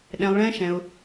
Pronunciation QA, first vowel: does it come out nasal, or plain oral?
nasal